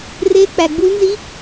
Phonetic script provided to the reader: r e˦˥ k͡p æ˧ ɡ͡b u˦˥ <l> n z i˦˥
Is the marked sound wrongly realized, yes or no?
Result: no